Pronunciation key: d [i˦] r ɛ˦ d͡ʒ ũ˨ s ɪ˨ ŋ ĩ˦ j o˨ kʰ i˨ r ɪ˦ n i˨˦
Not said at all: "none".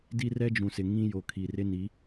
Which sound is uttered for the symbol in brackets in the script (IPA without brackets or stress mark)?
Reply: i˦